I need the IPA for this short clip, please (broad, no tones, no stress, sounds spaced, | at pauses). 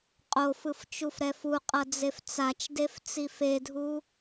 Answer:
qʼ o f ɯ f t͡ʃ u f ɾ ɛ f u qʼ ʌ d͡z e f t͡s a t͡ʃ d e f t͡s i f e dʱ u